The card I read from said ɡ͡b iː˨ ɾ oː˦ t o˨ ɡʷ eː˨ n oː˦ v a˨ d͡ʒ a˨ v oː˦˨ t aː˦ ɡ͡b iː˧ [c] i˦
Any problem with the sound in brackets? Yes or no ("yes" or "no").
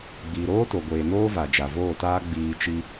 yes